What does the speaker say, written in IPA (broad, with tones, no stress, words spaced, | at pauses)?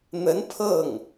n̪ə˧˥n pʰɤ˥˩ŋ